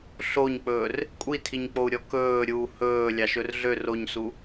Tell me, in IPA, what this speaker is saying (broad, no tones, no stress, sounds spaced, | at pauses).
ɬ o ɲ k͡p ɵː r | kʷʼ i tʰ i ɲ k͡p o u̯ ɾʲ ɔ k ɵː ɾʲ uː h ɵː lʲ ɑ ʃ ɵ r ɮ ø r o ɲ s u